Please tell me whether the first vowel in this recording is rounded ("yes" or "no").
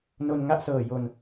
yes